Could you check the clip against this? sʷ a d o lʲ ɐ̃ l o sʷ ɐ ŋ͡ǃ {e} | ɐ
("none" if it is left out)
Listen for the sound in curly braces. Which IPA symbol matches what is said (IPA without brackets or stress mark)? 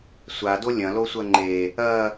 e